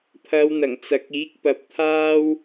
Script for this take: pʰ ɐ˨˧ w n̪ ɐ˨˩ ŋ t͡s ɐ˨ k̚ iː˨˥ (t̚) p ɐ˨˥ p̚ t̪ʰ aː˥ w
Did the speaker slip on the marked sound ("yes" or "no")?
yes